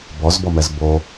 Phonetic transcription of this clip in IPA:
b ɔ z b ɔ m ɛ z b o

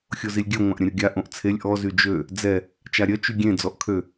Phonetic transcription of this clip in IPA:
xʲ o z i lʲ ɡʲ œ ŋʷ ã ʔ ɾʲ ə̃ ɾʲ o ɡʲ a ʔ õ ʔ t͡sʰ e lʲ ʔ ɔ z y d͡ʒ ø | d͡z ɛ | t͡ʃ a ɾʲ œ t͡ʃ y ɡʲ ẽ d͡z ɔ ʔ kʰ ø

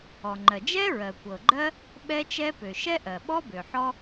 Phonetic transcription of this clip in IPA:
ɔ˩ ŋ͡ǃ ɜ˩ d͡ʒ ɛ˥ ɹ ɜ˩ kʷ ɤ˩ ɡ͡ǃ ɜ˥ | ɓ ɛ˥ t͡ʃ ɛ˥ p ø˩ ʃ ɛ˥ ʔ ɜ˩ ɓ ɔ˥ b ø˩ ħ ɔ˥

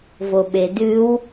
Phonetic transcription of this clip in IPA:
v o ɓ e d ʉ w

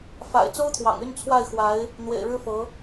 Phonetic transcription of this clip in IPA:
f a̰˨˩ ɪ̯ t͡s o˥ ʊ̯ t̪ʰ w ɑ̰˨˩ ŋ y˥˧ n t͡sʰ w a˥˩ ɪ̯ x w a˧˥ ɪ̯ | n̪ w ḛ˨˩ ɪ̯ ɻ ɻ̩˥ f ɤ˧˥

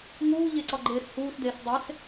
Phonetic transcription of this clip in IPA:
ŋ uː ʎ e ǀ ɒ ɡ͡ǃ eː s h uː s d eː s dˤ e s

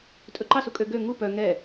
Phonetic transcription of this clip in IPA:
tʼ ɵ ǃ ɑ s u kʼ ø ɡ ø ŋ u p œ ŋ ɛ

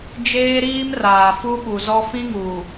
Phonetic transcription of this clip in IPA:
d͡ʒ eː˦ ɾ iː˦ m r aː˨ f u˦ ɓ u˨ z ɔ˦ f ĩ˦ ŋ u˨

